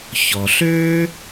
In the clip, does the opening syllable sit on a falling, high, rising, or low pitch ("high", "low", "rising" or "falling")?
low